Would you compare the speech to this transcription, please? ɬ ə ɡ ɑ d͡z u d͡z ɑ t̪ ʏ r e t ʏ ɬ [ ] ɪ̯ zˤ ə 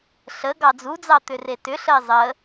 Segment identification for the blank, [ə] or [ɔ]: ə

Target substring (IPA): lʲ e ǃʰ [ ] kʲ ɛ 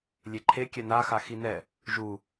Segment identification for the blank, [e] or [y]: e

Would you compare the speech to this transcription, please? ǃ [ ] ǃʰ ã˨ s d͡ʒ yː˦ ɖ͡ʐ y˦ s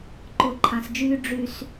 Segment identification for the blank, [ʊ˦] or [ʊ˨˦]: ʊ˨˦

